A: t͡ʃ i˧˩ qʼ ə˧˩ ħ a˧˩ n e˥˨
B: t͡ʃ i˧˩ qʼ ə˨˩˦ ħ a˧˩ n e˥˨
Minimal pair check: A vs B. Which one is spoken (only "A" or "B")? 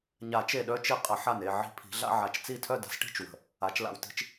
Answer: B